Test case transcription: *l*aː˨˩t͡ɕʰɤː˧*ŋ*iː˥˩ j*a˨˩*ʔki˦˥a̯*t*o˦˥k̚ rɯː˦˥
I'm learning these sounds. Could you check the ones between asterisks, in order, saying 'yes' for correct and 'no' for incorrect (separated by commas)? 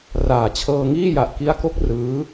no, yes, yes, no